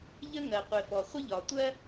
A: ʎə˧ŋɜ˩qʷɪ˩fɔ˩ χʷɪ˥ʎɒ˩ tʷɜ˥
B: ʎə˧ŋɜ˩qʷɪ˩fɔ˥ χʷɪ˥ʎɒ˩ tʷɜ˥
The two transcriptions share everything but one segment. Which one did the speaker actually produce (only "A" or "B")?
A